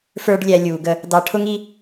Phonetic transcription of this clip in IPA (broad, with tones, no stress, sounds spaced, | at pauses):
f ə˞˦ ɖ lʲ æ˧ lʲ uː˨ ɡ ə˧ | d ɑ˧ ʈʰ ʊ˦ ŋ i˦